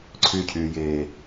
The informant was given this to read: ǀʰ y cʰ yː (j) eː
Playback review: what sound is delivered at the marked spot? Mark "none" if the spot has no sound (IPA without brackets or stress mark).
j